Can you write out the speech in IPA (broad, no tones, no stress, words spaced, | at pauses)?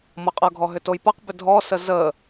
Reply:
mʌqʼʌɡʱɔ ɦʏtojpʌqbʏ dʱɔsə zə